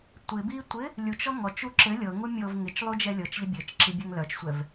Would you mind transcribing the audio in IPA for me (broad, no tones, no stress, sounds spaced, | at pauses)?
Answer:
tʷ ɪ b i tʷ ɪ | lʲ u t͡ʃ ɔ ŋ ɔ t͡ʃ u ǁ ɘ lʲ ɤ ŋ u mʲ ɤ v ŋ ɪ t͡ʃ lˠ u d͡ʒ ɛ lʲ ɤ t͡ʃ ʎ ə bʲ ɘ t͡ʃ ǁ i bʲ œ ŋ l œ t͡ʃ sʷ ɛ v